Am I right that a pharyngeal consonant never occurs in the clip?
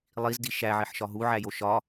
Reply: no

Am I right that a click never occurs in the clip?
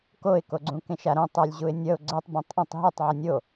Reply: no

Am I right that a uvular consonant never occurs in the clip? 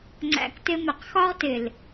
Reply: no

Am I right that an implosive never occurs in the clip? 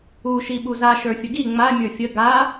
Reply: no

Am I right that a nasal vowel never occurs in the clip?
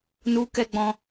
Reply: no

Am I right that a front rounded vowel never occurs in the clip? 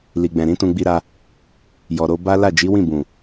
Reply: yes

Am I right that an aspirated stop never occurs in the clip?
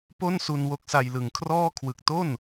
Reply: no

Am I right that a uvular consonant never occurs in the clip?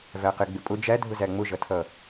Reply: no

